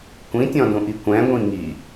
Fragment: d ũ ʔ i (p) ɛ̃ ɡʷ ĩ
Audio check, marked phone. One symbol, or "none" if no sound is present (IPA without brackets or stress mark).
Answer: kʷ